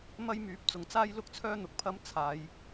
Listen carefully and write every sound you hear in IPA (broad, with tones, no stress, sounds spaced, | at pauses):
m ɐ˥ j m yː˨˥ p̚ t͡s ʊ˨˩ ŋ t͡s aː˥ j l ʊ˥ k̚ t͡sʰ œː˥ n̪ ʊ˧ k̚ pʰ ɐ˥ m t͡sʰ aː˨˧ j